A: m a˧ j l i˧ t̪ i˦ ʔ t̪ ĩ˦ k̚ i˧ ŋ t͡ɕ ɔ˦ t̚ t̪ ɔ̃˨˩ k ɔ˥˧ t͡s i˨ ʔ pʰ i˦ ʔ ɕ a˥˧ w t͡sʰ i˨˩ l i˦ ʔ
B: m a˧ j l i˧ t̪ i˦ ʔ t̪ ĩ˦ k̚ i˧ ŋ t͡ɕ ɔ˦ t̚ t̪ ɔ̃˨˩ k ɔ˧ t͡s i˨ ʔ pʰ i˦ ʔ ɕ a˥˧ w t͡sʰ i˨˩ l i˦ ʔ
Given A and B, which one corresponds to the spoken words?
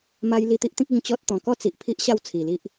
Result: A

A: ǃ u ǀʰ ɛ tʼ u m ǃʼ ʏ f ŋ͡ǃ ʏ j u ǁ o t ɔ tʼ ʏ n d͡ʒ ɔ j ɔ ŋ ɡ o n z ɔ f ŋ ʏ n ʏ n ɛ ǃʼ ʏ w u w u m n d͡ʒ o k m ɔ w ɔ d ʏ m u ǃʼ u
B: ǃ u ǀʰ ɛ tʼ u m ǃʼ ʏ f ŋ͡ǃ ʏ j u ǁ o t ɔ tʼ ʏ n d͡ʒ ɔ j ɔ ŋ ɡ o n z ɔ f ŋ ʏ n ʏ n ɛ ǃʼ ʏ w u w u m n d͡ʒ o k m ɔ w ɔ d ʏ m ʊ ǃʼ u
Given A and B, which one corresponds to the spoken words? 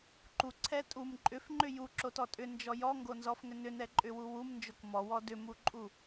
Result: A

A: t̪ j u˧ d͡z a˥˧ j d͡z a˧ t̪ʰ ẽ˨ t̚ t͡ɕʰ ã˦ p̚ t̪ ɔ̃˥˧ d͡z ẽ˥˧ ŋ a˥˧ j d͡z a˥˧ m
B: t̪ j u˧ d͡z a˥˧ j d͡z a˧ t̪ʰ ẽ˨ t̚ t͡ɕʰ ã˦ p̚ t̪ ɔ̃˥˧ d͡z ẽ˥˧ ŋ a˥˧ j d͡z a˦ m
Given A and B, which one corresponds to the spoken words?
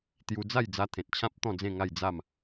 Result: A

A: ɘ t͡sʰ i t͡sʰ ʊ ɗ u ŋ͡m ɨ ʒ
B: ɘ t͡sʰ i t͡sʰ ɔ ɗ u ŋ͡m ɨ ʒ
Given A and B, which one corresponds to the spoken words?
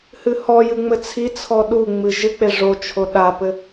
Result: B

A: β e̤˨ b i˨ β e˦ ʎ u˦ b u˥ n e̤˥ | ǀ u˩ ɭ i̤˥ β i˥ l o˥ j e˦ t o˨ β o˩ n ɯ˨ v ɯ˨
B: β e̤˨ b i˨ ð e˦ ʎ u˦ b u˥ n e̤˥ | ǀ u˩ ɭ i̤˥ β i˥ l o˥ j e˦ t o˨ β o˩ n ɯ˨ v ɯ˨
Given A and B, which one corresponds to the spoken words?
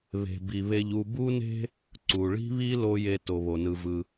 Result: A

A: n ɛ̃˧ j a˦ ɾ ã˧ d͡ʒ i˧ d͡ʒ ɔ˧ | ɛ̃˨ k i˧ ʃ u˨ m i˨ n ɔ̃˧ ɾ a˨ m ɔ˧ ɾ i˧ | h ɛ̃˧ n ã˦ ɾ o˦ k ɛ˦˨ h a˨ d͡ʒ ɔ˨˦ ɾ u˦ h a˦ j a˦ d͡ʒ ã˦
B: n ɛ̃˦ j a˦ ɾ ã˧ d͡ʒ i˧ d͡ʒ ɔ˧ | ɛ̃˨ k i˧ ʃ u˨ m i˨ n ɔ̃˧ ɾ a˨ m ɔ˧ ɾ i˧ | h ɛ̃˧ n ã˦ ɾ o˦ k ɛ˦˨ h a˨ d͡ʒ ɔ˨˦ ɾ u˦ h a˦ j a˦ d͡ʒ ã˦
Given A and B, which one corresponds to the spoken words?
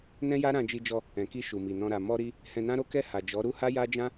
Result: B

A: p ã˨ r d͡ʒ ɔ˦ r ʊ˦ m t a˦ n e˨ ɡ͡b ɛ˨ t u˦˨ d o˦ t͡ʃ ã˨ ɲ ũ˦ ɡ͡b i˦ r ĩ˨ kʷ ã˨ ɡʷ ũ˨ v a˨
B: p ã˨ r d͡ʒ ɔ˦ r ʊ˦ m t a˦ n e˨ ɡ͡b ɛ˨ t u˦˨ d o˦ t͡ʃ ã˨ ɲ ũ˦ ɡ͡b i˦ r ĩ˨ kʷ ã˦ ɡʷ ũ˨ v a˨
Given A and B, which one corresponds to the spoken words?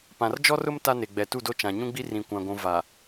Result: A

